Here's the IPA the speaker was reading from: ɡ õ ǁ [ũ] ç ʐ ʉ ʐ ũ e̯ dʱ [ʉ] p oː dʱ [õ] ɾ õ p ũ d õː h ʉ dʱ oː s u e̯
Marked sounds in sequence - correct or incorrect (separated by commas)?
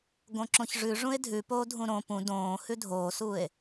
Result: incorrect, correct, incorrect